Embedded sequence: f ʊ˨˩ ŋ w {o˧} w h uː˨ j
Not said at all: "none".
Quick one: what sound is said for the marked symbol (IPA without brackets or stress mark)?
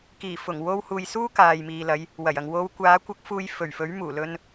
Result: o˧